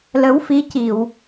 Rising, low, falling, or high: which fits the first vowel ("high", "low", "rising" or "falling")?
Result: rising